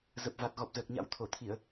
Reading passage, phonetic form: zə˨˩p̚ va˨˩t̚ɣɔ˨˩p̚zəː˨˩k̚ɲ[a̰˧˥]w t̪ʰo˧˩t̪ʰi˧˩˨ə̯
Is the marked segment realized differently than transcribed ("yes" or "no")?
no